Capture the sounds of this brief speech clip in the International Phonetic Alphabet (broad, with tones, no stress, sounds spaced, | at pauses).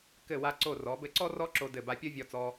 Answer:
k ɘ˧˩ w a˧ ǀ o˧˩ r ɔ˩˧ b ɘ˧ ǀ ɔ˥ r ɔ˥ ǁ o˧ d ɘ˧˩ b a˧ pʲ o˥ vʲ ɔ˧ t͡s ɔ˧